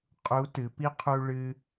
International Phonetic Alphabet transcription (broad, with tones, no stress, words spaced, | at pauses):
qʼu˧˥tɨ˩˧pi˥ qʰu˥ɭɨ˥